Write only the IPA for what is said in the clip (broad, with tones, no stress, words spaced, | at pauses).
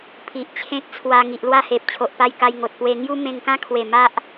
pʰi˨ʔt͡ɕʰẽ˦k̚t͡sʰwa˧ ŋi˨ʔlwa˥˧he˨p̚ t͡ɕʰo˨ʔpa˧j ka˧jŋo˨t̚pwe˧ ŋju˦mẽ˧ŋkã˦kʰwe˨˩ ma˦ʔ